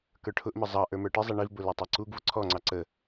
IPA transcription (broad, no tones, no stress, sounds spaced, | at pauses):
k ə˞ ʈʰ ʊ ʔ m ə zˤ ɑ ʔ ə˞ m ə˞ ʈ ɪ zˤ ɛ ɳ i v b ʊ l ɛ tˤ ɛ ǀ u ɡ v ʊ ǀʰ ɔ ŋ͡ǀ ɑ ǀ ə